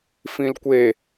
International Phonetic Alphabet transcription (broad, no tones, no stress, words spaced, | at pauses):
fĩlkʷe